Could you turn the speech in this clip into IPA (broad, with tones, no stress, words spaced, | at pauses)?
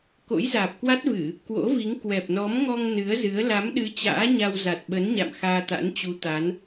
ko̰˧˥jzaː˨˩p̚kwa˦˥t̚vɨ˧˩˨ | kwo̰˧˥vi˨˦ŋ kwɛ˨˩p̚nɔ˨˦mŋɔ˧ŋ nɨ˨˦ə̯zɨ˨˦ə̯ la˨˦mɗɨ˨˦ t͡ɕa̰ː˧˥ɲa˧w za˨˩t̚ɓə˨˦nɲa̰˧˨m xaː˧t̪a̰˧˥nt͡ɕu˨˦t̪a˨˦n